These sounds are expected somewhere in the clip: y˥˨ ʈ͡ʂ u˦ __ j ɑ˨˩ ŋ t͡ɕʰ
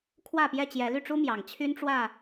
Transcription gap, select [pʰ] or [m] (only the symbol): m